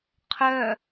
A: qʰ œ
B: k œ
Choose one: A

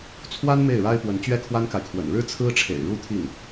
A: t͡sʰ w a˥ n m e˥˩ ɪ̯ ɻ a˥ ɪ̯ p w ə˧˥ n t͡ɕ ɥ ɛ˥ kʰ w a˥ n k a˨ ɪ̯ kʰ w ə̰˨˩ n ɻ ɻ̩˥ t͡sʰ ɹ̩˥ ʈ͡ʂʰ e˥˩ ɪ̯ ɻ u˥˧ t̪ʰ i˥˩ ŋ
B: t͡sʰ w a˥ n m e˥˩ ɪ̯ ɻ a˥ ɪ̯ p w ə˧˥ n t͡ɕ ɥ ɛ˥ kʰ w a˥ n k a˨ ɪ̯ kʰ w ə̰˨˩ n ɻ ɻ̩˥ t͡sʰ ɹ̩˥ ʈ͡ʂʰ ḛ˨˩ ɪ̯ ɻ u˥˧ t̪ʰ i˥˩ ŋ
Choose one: B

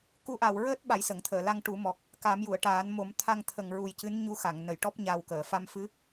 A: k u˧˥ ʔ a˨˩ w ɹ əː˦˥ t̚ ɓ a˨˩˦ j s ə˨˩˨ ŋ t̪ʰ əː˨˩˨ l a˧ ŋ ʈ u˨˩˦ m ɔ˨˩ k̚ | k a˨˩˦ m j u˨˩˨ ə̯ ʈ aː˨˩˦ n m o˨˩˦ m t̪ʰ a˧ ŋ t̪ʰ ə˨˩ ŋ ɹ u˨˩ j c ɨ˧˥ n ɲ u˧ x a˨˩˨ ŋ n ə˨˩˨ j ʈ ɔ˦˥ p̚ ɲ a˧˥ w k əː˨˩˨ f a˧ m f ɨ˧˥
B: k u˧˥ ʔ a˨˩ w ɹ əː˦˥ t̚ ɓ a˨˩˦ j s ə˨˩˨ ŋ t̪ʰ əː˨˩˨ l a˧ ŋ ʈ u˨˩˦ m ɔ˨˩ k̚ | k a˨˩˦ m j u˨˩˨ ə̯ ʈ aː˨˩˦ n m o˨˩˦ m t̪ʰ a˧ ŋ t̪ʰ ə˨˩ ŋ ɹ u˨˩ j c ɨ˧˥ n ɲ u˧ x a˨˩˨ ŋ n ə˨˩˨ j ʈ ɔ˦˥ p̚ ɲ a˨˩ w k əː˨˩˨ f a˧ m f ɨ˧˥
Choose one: B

